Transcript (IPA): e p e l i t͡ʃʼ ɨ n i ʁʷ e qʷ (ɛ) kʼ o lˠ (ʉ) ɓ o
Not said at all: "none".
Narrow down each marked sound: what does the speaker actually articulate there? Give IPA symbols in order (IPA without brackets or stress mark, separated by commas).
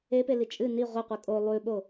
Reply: ɨ, ʉ